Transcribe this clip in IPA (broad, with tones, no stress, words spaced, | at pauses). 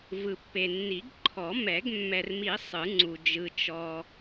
vɯ˨pːe˨ nːi˨˩˦ɡ ǃʰɔ˨˩˦ mɛ˨˩˦ɡ mːɛ˨rmi˨˩˦ sˤɯ˨˩˦ŋ͡ǀu˨ d͡ʒɯ˨ t͡ʃɔ˨